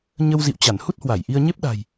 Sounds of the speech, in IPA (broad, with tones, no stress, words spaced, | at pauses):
ɲə˧wzḭ˧˨wt͡ɕa˧˩n hu˦˥t̚hwa˧˩jʔi˧ə̯ɲe˦˥p̚ ɗa̤˨˩j